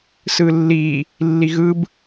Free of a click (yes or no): yes